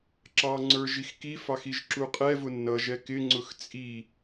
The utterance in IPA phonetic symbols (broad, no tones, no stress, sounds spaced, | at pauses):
ǁ ɑ ŋ͡ǀ ə˞ ʒ i x k i f ɑ x i ʒ ǁ u qʼ ɛ v ʊ nː ʌ ʒ ɛ k ɪ ŋ͡ǀ ʊ x t͡sʼ i